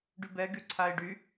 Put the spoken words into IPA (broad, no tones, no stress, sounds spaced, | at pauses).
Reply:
ɖ y b ɛ ɡ y ǀʰ a ɪ̯ ɖ y